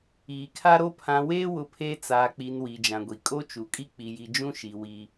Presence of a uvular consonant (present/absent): absent